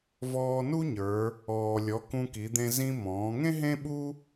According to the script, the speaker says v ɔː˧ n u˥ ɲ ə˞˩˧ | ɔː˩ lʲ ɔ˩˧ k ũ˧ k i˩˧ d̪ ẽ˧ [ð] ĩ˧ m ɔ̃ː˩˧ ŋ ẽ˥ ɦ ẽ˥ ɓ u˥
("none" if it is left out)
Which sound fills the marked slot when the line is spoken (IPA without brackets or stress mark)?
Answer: z